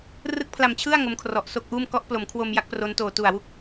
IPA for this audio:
rɯ˦˥k̚pʰla˨˩mt͡ɕʰɯ˥˩a̯ ŋo˦˥mkʰrɔ˨˩ʔso˥˩k̚ʔuː˥˩m kɔ˦˥ʔplo˩˦mkʰwo˧m ja˦˥k̚pro˦˥ntoː˨˩ tu˨˩a̯wu˦˥k̚

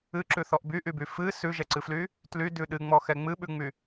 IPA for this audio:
ɨǁʉθɔʔ byʔyby fɨ sʉʒɛǀɨfly | tlydʉ ɗɨŋ͡mɔxɛ ŋ͡mɨɓʉŋ͡my

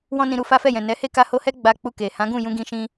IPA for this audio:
wɔ̃˦nĩ˧ɾu˧ fa˦fɛ˦˨jɛ̃˨ nɛ˨˦he˦˨ ka˧ho˧hɛ˦ ɡ͡ba˧k͡pu˧ke˨ hã˨˦ɡũ˦˨ jũ˧ɡĩ˧ʃĩ˧

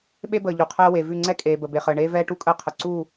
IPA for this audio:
ɓe˦bəː˨ ʎu˨qʰɛː˦ we˨vʉ˦˨ ŋ͡ǀɛ˦ kʼeː˨bə˨ be˨χəː˨ ɳeː˦vɛː˦ ʈu˦kʼəː˦ qʰə˨ ǀu˦˨

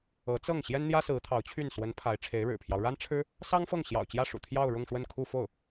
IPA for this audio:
ɤ˧˥t͡sɤ˥˩ŋ ɕjɛ˥nn̪jä˥sɹ̩˧˥ t̪ʰɑ˧˥ʊ̯t͡ɕʰy˥˩n swə˧˥n pʰa˧˥ɪ̯ʈ͡ʂʰe˧˥ɪ̯ɻɻ̩˨˩pʰjɑ˦ʊ̯ ɻa˥nʈ͡ʂʰɻ̩˥ | sɑ˥ŋfɤ˥˩ŋɕjɑ̰˨˩ʊ̯t͡ɕjä˥˩ ʂṵ˨˩t̪ʰjɑ˥˧ʊ̯ ɻʊ˥˧ŋʂwə˥˧nkʰu˥˧ fo˥˩ʊ̯

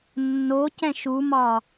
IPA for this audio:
nːocɛ̃ ʃumɒ

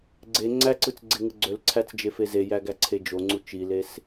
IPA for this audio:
ɡ͡ǀe ŋ͡ǀæǀɯt͡sɡ͡ǀeŋɯ ɡ͡ǀølǀʰæt͡sd͡ʒefe zejæɡæǀʰe d͡ʒoŋ͡ǀu t͡ʃiles

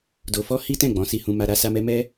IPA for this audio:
do˧fɔ˦ hi˦tɛ̃˦˨ ɡ͡bɔ̃˨˦si˧hũ˧ma˧ ɾa˧sa˧mɛ˧ mɛ˦

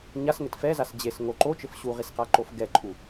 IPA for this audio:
ɲasŋɘt fɛzas d͡ʑesŋo ǃot͡ʃɘf ɕuʁisqaǃof ɡɛǃʼu

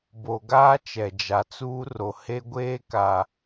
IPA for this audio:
bo˨ɡaː˦ t͡ʃɛ˨d͡ʒa˨t͡suː˦ ro˨he˦ ɡʷeː˦ ka˨

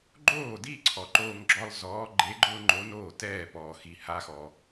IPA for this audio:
ɡ͡ǃoː˥˨di˥˨ǀʰɔ˨ ǃoː˥ŋɡ͡ǁɔ˥lˠ zɔː˧˥ɡ͡ǃe˧˥ɡ͡ǃʊː˥ ŋ͡ǃo˧˥noː˥˨tɛː˥˨pɔː˨ xi˨ha˧˥xɔ˨

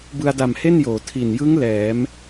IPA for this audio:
bɯ˧a̯da˨˩mhe˥˩njoː˩˦ tʰi˨˩njɯ˦˥ŋ lɛː˩˦m

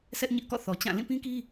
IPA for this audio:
sʰɛ˦ʔɲɪ˦ʔkɔ̰˦˨θɔ˨ t͡ɕã˦˨ lĩ˦˨pĩ˦ki˦

